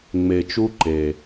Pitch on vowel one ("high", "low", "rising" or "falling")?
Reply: low